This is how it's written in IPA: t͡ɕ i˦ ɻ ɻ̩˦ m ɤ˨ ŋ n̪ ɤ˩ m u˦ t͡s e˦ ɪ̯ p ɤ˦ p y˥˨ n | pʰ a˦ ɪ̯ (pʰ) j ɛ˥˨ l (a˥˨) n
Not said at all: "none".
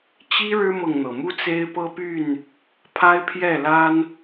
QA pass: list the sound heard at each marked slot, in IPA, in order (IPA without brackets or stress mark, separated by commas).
pʰ, a˦